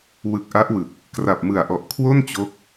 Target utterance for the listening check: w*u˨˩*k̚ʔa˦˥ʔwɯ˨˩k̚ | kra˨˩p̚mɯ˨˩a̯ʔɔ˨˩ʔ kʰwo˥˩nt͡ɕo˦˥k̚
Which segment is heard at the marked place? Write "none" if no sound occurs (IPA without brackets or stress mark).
ɯ˨˩